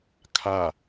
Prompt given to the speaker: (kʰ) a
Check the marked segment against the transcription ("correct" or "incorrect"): correct